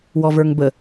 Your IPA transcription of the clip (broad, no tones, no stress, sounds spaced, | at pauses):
w ɔ v ə˞ ŋ b ə